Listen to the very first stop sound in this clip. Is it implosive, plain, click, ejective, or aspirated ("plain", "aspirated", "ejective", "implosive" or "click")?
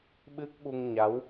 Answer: implosive